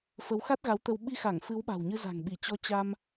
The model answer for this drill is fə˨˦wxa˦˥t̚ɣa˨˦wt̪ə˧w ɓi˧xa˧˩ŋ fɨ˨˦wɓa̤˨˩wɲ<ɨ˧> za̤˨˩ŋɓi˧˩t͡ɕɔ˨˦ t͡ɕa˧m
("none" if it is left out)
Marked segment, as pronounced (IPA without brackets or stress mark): ɨ˧